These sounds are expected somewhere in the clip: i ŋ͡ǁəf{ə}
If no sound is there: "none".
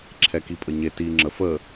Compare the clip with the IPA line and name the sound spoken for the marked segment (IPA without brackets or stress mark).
ə